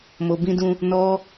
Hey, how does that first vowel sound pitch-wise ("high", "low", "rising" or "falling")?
low